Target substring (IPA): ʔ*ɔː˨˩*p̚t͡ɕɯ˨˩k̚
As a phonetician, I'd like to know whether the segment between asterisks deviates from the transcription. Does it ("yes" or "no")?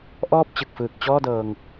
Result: yes